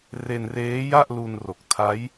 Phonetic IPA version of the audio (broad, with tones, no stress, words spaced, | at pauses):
re˧nreː˦˥ja˥˩ʔlu˧n ro˨˩k̚tʰa˦˥j